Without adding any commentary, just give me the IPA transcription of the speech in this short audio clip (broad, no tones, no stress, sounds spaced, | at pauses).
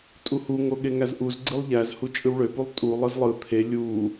tʼ u h u ŋ o ɠ e ŋ æ z ʔ u z ɡ͡ǀ ɯ lˠ ʎ æ z h u t͡ʃʼ ɯ w ɭ ø p u lˠ tʼ u lˠ ɯ z lˠ ɯ t̪ʰ e lʲ u